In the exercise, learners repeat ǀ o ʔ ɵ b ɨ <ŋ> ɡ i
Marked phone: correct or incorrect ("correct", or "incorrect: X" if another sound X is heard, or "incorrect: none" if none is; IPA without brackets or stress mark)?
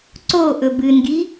incorrect: n